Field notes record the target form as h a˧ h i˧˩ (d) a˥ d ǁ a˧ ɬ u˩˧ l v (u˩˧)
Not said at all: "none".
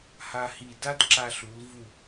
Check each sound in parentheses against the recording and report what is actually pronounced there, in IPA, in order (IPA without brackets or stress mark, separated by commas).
d, u˧˩